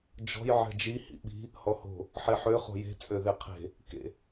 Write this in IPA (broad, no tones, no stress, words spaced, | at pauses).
d͡ʒɔ̤j ʕɛ̤d͡ʒi hḭɓi̤ | hɔho̤ | ħeħø χo̤je̤ t͡sʼøðeqʰe̤ | kḛ